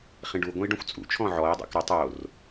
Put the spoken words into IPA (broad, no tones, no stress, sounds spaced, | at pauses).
χ ĩ ɖ u ɡʷ ə̃ i̯ ɖ œ̃ xʷ t͡sʼ ṵ t͡ʃʰ ɔ̃ ʕ ɔ i̯ dˤ o̰ k ɾ ə tˤ o r